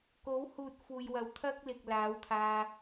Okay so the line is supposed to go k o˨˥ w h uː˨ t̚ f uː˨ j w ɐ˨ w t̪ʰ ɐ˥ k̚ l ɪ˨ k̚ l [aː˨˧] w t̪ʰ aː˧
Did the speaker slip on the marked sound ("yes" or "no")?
yes